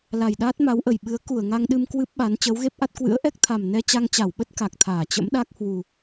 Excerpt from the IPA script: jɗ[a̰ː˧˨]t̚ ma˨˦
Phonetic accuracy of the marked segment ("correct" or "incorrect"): incorrect